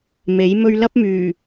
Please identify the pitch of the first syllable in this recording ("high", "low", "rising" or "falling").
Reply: rising